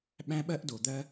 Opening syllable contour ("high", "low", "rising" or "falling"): high